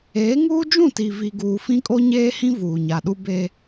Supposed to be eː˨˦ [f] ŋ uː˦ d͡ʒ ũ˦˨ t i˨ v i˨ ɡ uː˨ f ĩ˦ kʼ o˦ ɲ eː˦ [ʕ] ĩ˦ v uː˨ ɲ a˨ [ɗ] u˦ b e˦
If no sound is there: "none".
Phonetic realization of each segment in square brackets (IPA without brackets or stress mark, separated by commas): none, h, ɗ